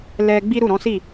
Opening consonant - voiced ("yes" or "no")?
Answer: yes